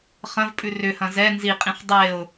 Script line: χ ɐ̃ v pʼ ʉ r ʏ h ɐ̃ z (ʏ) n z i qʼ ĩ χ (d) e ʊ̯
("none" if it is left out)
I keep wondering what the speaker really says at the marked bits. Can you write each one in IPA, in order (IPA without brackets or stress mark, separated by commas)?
ɛ, dˤ